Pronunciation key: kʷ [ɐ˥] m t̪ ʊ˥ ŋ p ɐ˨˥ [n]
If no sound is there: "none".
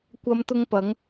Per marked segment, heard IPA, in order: ɐ˥, ŋ

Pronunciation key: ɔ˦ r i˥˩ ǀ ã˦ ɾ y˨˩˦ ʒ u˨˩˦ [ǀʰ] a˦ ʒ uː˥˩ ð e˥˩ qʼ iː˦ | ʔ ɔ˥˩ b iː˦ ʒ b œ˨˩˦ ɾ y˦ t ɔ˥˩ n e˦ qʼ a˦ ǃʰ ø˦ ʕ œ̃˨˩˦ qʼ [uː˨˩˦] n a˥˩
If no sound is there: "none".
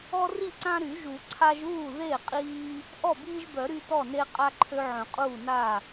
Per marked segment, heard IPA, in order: ǀʰ, uː˥˩

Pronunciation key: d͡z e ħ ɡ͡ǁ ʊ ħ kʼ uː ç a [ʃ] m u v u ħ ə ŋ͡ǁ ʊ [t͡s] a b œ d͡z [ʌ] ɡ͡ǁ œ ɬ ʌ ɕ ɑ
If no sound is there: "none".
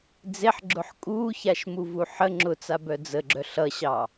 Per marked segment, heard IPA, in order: ʃ, t͡s, ə

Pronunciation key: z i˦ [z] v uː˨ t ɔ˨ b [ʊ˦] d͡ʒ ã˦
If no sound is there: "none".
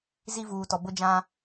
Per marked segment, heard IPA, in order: none, ʊ˦

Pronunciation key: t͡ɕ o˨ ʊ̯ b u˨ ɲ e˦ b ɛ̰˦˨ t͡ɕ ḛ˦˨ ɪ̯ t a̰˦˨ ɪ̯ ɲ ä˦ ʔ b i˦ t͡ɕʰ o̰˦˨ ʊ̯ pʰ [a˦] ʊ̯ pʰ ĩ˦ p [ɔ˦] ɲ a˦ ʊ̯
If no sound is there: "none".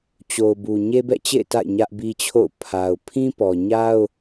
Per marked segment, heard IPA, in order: a˨, ɔ˨

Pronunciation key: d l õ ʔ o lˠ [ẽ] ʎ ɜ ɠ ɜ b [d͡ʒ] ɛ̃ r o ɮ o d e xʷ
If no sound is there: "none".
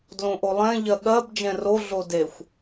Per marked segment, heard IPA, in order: ɛ̃, d͡ʒ

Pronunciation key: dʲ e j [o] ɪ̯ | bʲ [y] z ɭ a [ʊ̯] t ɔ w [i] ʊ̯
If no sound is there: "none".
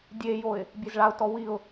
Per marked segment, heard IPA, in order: o, e, ʊ̯, i

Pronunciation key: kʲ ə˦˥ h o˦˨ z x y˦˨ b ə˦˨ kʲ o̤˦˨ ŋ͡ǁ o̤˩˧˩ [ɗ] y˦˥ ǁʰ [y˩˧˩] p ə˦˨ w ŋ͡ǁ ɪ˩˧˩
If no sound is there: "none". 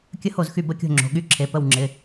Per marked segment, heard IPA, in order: ɠ, e˩˧˩

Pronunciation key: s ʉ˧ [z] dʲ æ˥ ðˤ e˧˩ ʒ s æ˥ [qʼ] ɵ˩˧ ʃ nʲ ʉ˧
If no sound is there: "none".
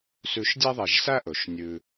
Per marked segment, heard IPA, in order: ʃ, ʔ

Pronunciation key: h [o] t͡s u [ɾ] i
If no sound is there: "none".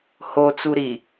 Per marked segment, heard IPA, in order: o, ɾ

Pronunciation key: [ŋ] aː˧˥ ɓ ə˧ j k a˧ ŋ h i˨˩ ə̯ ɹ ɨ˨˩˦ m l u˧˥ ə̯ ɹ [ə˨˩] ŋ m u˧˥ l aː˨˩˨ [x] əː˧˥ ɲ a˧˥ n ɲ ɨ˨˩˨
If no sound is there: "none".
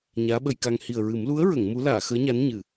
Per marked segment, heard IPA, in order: ɲ, ə˨˩˨, x

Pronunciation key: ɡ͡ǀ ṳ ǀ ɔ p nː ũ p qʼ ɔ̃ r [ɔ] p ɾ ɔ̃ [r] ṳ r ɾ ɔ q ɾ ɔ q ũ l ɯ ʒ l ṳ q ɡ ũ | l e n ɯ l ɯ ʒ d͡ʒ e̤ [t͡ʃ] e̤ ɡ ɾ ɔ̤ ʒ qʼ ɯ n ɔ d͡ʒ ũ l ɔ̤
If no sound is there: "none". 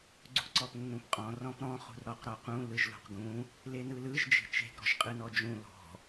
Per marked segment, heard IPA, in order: ɔ̃, χ, t͡ʃ

